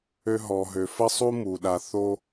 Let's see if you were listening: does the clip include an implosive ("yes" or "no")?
yes